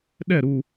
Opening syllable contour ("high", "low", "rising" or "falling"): falling